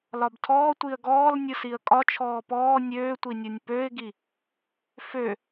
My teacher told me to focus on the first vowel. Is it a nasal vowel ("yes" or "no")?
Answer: no